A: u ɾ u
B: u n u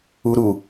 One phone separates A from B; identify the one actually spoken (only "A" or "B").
A